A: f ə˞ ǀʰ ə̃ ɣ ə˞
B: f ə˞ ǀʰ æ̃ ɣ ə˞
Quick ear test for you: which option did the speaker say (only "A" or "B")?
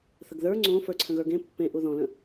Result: A